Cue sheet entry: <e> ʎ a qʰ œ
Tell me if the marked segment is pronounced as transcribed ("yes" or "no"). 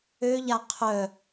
no